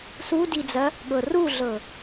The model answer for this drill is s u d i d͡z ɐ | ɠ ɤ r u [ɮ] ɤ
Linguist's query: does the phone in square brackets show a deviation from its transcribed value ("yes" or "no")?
no